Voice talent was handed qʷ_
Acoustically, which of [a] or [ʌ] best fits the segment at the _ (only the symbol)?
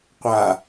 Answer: a